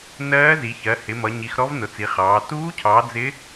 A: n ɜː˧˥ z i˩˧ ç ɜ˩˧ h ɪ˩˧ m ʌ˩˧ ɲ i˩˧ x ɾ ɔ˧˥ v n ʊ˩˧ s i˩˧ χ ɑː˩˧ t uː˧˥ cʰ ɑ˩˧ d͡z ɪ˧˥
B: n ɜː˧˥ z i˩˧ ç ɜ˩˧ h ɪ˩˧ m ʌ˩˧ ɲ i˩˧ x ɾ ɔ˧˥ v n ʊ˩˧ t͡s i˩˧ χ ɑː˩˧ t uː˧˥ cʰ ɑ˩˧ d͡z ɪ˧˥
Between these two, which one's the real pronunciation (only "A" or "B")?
B